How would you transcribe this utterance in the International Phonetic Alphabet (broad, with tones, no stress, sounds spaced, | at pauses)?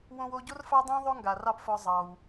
w õ˧ w o˧ ɟ o˥ r f ɑ˥ dˤ ĩː˥ ðˤ o˥ ŋ ɡ a˩ r ɑ˥˩ p f ɔ˧ zˤ ɑ˩ w